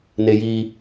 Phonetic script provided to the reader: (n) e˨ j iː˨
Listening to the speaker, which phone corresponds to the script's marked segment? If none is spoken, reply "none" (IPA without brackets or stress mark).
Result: n